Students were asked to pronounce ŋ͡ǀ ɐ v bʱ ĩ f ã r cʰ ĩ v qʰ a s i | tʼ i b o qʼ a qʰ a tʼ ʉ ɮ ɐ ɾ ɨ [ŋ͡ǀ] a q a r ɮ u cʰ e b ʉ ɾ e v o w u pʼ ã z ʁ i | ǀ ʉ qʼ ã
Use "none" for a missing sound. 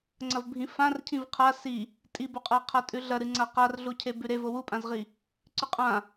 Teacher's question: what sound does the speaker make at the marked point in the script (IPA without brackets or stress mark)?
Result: ŋ͡ǀ